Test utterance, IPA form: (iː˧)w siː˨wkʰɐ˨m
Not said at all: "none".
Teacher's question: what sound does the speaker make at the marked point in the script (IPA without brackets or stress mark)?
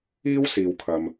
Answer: iː˥